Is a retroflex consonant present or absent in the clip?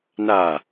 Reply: absent